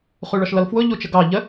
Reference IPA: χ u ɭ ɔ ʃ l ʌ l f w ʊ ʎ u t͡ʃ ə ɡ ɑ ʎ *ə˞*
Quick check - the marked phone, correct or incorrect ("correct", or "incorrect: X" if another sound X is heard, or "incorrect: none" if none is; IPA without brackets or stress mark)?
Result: incorrect: ə